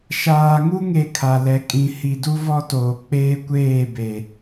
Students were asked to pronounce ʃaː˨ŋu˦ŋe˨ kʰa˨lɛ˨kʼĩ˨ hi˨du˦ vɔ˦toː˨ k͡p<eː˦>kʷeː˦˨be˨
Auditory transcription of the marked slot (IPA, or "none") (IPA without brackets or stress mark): eː˦